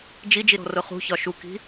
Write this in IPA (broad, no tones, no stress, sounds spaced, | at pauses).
d͡ʒ i d͡ʒ i ɾ ɔ̤ r ʊ χ ṳ ç ɒ ʃ u k i̤